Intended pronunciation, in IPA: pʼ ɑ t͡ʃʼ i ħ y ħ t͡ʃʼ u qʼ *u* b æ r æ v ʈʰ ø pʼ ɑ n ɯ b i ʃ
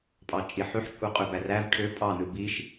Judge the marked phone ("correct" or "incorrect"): incorrect